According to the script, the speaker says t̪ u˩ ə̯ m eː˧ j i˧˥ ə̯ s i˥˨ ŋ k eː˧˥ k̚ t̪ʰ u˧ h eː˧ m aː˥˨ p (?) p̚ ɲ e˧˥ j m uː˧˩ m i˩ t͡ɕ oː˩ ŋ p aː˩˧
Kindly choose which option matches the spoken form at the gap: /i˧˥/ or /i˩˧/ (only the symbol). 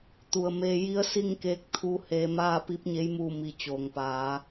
i˧˥